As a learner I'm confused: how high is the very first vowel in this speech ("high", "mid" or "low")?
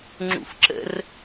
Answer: high